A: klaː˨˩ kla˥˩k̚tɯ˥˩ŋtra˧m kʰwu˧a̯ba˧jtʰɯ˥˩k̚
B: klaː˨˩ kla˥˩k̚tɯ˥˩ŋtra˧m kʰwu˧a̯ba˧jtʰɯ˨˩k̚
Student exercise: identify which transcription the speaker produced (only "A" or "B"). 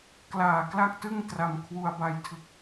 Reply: B